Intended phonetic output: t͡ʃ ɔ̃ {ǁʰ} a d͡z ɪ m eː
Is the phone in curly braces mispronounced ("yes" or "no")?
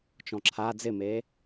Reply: no